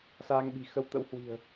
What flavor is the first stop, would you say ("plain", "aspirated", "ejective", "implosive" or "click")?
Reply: implosive